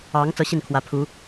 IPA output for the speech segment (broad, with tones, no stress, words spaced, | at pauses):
ɑ˧˥ŋ t͡sɤ˥ɕi˥˩n kʰwä˧˥pʰu˧˥